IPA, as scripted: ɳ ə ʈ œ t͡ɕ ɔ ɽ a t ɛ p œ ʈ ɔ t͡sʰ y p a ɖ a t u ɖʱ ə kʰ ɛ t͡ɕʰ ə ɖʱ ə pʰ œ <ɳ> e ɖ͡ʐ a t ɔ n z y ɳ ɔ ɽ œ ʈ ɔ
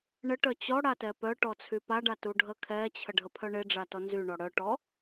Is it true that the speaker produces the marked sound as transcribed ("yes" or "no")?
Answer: yes